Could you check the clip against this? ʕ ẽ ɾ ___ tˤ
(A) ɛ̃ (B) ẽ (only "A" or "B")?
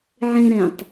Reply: A